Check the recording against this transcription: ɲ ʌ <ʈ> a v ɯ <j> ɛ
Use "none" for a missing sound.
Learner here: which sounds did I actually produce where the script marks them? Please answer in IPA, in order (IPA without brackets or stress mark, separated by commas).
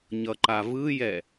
ǃ, j